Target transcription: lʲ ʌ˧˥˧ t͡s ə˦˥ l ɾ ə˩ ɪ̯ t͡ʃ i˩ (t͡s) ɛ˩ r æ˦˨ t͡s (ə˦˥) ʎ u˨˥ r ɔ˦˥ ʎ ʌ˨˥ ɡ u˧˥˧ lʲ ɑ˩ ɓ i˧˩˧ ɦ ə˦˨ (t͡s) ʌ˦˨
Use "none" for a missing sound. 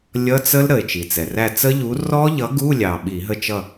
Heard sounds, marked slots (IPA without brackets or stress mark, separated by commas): t͡s, ə˦˥, t͡ʃ